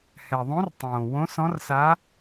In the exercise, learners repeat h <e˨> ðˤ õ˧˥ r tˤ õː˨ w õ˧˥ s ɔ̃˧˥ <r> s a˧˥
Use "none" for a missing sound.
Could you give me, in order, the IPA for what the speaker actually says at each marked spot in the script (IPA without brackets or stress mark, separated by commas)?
ɛ˨, r